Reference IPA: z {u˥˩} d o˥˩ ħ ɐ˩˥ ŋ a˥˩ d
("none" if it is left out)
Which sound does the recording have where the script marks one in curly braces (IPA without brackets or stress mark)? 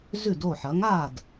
ʉ˥˩